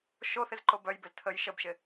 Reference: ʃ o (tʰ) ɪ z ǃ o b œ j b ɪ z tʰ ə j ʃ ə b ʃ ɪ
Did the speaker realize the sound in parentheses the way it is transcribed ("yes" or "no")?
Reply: no